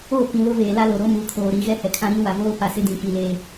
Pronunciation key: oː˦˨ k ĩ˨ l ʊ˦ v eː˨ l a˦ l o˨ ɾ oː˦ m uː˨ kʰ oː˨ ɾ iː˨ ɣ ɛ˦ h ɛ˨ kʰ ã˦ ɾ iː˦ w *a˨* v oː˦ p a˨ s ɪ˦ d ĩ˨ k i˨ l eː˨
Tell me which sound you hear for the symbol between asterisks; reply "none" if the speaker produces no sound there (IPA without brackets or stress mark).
a˨